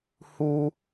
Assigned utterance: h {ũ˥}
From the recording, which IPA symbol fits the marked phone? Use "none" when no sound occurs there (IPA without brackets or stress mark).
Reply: u˥